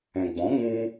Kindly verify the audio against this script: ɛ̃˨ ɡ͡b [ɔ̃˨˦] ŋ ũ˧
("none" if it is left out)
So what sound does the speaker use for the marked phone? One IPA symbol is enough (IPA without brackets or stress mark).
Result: ɔ̃˨˦